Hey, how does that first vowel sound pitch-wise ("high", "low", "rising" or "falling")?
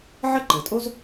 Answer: high